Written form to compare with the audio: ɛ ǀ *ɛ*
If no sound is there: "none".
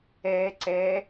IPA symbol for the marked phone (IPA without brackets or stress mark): ɛ